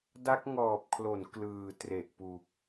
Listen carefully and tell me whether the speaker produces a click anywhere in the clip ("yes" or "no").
no